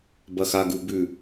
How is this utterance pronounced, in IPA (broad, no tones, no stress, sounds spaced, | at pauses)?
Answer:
b ɐ x a ɡ u b ʉ